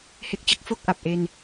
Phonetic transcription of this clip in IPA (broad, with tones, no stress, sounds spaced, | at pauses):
h e˦˥ k̚ t͡ɕ ɯ˦˥ k̚ f o˥˩ k̚ ʔ a˨˩ p̚ ʔ e˧ n